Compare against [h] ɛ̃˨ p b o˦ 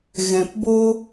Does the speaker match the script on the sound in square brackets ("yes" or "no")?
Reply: no